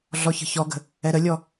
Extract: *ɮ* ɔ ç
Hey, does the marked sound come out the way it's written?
yes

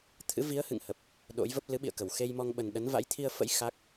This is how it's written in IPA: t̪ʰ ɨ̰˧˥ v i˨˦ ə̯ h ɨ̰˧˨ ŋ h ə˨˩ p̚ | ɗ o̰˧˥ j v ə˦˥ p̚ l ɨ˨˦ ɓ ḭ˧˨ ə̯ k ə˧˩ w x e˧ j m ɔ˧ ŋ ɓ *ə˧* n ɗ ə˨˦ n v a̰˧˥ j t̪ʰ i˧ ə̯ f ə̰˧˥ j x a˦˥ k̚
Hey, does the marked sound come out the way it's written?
no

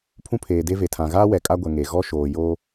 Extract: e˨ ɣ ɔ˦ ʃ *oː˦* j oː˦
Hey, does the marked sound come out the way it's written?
no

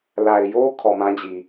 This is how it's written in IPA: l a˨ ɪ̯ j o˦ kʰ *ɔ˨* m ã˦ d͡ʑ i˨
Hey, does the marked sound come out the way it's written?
yes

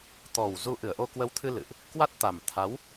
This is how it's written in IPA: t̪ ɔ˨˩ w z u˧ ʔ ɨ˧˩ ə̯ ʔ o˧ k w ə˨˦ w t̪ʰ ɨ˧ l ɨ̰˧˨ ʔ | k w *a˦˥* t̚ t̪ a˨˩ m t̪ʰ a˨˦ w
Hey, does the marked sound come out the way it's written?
yes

